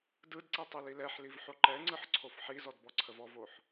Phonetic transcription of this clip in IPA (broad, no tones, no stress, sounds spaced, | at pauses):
d ɯ d ǀ i tˤ i l i l ɛ ħ l i v ħ o ǃ ɛ ŋ͡ǀ ɯ ħ ǀʰ o f ħ i z ɔ d b ɔ ǀʰ ə v ɔ v o ħ